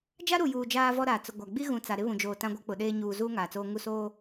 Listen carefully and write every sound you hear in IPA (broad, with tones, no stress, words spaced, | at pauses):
d͡ʒa˦ɾu˨juː˨ d͡ʒaː˦vɔ˦ɾaː˨ t͡sʊ˨ɡʷa˨ ɡ͡bi˦ɣũ˨ t͡sa˨ɾɪ˦ βũ˨d͡ʒoː˨ tã˦ɡʷa˦k͡pʊ˨ɗeː˦ ɲuː˨zuː˦ ŋaː˨t͡soː˦ ŋu˦˨soː˦